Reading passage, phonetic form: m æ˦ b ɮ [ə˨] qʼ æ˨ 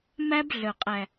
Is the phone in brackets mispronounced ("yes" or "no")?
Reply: yes